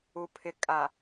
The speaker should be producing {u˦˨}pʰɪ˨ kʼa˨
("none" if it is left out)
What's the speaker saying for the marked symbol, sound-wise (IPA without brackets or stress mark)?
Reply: u˨